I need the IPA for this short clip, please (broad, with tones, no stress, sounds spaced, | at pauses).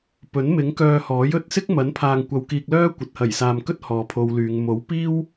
p ɵ˨˥ n m ɪ˨˥ ŋ k œː˧ h ɔː˨˥ j ɵ˨˥ t̚ s ɪ˥ k̚ m ɐ˨˥ n pʰ aː˨ ŋ kʷ ɐ˧ w k iː˧ k̚ l œː˥ kʷ ɐ˨ t̚ h ɐ˨˩ j s aː˨ m k ɵ˥ t̚ h ɔː˨ pʰ o˧ w l yː˨˧ ŋ m o˨˥ w p iː˥ w